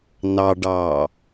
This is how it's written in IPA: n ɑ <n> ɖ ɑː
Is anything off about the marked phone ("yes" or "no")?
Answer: yes